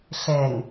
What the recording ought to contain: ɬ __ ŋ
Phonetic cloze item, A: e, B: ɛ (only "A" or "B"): B